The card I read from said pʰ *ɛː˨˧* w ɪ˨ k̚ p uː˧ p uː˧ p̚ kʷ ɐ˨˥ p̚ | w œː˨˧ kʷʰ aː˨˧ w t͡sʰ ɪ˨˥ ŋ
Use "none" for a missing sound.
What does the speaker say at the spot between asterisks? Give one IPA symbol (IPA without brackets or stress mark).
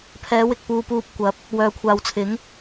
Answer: ɛː˨˧